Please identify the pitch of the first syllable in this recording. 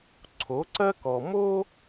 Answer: rising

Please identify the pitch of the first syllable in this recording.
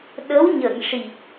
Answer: rising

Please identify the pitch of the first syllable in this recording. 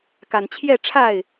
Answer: low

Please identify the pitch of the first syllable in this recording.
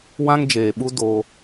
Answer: high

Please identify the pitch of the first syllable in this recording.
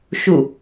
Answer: falling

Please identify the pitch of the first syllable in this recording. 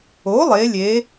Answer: rising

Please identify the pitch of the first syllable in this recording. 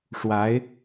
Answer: rising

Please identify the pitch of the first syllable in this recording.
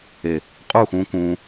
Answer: low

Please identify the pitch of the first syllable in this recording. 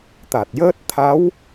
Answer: low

